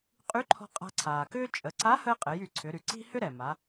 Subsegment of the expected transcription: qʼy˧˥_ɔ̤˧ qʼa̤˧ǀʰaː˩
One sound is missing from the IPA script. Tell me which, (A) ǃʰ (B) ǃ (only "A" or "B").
A